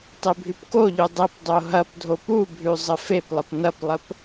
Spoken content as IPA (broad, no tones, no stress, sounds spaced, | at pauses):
tˤ e bʱ ʉ p k o ʎ ʉ dˤ ɘ p dˤ o ɦ ɐ p dʱ o p u bʱ ʉ zˤ ə f e p lˠ ə p n ɐ p lˠ ə p